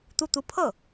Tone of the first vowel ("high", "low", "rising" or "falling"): falling